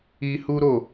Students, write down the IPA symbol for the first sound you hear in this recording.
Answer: i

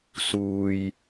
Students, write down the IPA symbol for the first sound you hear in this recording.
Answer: s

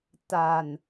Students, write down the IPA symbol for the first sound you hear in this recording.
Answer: t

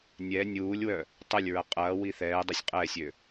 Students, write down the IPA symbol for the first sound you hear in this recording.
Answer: nʲ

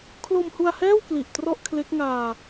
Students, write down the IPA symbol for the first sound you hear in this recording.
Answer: kʰ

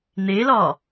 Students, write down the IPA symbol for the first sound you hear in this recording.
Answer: n̪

